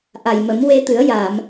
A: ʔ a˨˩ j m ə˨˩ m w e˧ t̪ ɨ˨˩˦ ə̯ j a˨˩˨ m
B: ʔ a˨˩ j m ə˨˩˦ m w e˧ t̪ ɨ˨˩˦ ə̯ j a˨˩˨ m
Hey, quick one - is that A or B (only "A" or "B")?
B